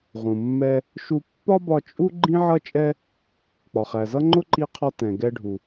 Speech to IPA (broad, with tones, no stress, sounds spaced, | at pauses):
ʁ ũ˩ mː ɛ˧ | ʃ u˧ pː ɒ˥ b ɒ˧ t͡ʃʼ u˥ ɡ͡ǃ ĩ˥ ʕ ʌ˥ t͡ʃʼ ɛ˥ | k͡p ɒ˩ χ æ˩ z ʌ˥ ŋ͡ǃ ʊ˥ ǃ i˧ qʰ ɒ˧ t ɛ̃˩ ɡ ɛ˧ ɖʱ u˩